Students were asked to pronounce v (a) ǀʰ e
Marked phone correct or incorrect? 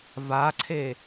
correct